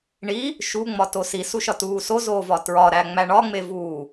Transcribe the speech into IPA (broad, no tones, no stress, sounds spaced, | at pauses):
ɳ i | ʃ u ŋ͡m ɒ t o s i s u ʃ ɒ t uː s o z oː v ɒ t ɹ ɒ ɾ æ ŋ͡m æ ɳ ɒ ŋ͡m e v uː